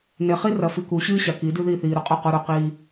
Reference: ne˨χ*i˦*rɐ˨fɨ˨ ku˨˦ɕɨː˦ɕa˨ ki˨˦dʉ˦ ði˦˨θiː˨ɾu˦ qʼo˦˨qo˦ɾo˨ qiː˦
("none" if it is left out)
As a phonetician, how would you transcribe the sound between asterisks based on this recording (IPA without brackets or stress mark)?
i˦